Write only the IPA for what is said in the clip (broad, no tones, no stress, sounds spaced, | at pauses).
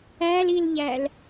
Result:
æ l i l ʎ æ l